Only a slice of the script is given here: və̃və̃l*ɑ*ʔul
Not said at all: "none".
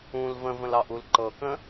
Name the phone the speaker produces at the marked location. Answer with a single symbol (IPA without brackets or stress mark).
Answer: ɑ